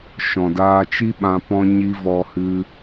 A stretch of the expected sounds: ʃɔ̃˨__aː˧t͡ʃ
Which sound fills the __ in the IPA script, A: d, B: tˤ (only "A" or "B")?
A